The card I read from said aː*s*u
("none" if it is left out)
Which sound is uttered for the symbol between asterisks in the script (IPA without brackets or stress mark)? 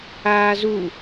z